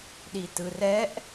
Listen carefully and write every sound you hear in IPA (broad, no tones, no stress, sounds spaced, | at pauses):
ɗ i t ɯ r ɛ ʔ